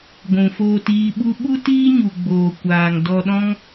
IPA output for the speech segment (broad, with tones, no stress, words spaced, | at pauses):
ɡʷũ˨foː˧tiː˧ɓu˦ ɓu˦tiː˦ɲu˨ɡ͡boː˨ kʷaː˨ŋ dɔ˧ɗɔ̃˦ŋ